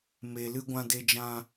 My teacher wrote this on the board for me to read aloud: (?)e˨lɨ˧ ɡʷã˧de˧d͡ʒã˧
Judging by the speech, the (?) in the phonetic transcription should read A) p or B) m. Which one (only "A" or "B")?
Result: B